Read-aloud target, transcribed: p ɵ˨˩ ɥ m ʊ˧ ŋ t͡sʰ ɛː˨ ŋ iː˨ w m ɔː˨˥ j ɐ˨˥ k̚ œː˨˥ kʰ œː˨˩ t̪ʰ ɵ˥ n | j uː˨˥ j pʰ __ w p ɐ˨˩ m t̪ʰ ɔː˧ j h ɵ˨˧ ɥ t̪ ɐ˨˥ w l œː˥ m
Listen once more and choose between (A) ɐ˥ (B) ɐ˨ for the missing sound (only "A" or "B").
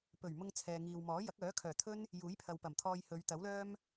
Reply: B